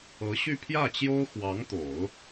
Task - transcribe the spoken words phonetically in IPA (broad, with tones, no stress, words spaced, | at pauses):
ɤ˧˥ɕy˥˧pʰjä˥˩t͡ɕjo˥ʊ̯ xwɑ˧˥ŋt̪o˨˩˦ʊ̯